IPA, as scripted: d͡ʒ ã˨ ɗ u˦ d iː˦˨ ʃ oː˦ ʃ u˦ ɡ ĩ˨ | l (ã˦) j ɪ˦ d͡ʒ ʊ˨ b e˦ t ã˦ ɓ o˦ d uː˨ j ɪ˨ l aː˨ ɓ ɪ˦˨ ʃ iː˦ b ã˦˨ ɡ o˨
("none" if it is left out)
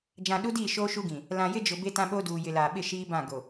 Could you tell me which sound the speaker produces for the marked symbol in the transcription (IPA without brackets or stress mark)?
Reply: ã˨